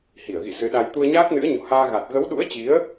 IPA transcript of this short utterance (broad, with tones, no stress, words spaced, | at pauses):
hi˧˩ə̯ɣḭ˧˨ sɨ˨˦ɗa˧j t̪u˧ə̯ɲaː˦˥k̚nɨ̰˧˥ə̯ ɲo̰˧˨haː˧ɣa˨˩t̚ ɣə˨˦wɗṵ˧˥ə̯t͡ɕi˨˦ə̯